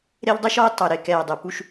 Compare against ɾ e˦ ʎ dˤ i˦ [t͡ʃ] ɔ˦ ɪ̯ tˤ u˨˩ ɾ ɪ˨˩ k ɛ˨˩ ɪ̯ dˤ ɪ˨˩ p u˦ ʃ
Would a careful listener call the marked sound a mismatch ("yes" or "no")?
yes